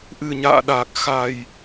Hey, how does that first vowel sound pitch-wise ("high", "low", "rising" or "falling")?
low